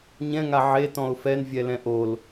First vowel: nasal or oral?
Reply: nasal